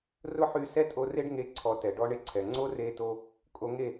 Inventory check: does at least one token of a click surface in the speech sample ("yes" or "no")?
yes